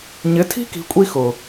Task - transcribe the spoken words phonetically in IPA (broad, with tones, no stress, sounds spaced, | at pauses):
ɲ ɪ˨˦ tʰ i̤˦ k i̤˨ kʷʼ i˦ x ʊ˨